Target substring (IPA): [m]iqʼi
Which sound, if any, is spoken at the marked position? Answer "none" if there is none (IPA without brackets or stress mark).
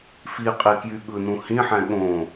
f